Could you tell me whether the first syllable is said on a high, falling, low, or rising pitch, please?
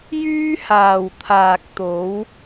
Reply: high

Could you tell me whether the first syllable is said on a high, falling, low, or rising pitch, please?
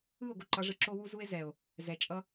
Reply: falling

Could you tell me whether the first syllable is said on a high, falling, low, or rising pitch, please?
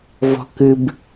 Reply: high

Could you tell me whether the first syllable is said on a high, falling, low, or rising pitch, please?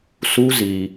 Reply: high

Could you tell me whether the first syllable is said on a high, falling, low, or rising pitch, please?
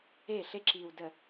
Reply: falling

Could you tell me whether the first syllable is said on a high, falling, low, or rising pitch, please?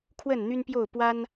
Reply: falling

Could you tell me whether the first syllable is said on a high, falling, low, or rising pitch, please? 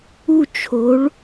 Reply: falling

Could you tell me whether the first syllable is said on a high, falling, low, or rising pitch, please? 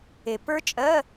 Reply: low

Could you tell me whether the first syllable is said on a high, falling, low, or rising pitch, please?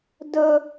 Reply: high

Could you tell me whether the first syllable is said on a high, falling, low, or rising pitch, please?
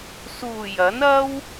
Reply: low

